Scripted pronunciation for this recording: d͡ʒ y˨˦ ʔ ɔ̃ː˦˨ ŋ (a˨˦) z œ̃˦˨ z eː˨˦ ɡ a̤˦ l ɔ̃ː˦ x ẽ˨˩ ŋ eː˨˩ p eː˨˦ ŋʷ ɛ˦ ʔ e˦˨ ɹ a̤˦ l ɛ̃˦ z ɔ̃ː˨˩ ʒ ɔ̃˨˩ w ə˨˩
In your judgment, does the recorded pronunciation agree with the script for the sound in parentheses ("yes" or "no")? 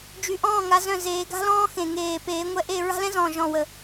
yes